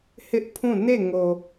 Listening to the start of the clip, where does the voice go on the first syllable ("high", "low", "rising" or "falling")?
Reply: high